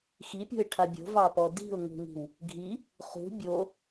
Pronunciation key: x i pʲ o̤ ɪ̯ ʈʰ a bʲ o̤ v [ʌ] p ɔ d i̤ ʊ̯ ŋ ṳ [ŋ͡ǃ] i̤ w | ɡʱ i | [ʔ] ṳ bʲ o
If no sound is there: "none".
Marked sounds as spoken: ɑ, ŋ, χ

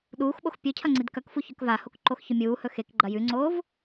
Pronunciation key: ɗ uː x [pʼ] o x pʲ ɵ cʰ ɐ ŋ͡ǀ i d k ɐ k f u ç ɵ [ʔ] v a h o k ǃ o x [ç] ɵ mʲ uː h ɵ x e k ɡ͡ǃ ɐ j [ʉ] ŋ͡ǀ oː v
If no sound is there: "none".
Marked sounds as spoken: ɓ, k, ç, ʉ

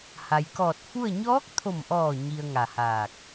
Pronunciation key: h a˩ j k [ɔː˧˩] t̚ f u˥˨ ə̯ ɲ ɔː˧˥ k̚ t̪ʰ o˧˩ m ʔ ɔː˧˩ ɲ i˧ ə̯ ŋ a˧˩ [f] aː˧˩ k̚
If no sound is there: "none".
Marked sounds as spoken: ɔː˧˩, h

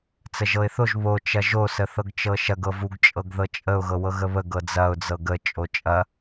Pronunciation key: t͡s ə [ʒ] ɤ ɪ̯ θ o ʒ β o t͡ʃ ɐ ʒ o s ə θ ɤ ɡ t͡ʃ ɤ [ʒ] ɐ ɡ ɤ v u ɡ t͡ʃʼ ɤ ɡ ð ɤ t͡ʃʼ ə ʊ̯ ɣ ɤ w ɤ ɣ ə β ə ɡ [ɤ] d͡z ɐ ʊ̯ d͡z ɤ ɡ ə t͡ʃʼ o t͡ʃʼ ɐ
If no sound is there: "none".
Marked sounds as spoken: ʒ, ʃ, ɤ

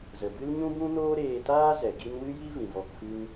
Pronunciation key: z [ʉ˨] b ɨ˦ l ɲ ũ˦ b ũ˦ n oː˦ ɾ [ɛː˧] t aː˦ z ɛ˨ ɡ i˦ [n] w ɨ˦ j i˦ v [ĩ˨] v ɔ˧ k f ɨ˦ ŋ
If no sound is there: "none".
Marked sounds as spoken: ə˨, eː˧, n, ĩ˨

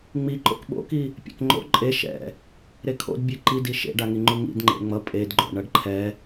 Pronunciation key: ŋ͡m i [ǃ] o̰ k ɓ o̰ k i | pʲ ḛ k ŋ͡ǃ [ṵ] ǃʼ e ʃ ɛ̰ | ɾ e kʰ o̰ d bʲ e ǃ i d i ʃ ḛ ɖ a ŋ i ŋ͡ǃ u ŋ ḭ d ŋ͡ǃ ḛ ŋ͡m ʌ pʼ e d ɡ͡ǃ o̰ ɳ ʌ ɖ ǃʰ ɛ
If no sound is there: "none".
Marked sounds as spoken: ǃ, o̰

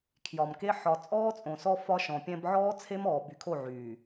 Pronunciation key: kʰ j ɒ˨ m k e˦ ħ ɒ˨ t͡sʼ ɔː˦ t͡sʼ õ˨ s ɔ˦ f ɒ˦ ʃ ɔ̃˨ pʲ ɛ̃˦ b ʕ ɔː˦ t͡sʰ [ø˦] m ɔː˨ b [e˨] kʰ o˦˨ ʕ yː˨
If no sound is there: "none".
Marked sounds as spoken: e˦, y˨

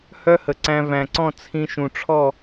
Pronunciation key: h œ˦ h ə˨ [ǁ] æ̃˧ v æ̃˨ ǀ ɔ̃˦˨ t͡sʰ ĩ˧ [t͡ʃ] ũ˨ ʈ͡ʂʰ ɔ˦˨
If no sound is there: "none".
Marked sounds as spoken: ǀ, ʃ

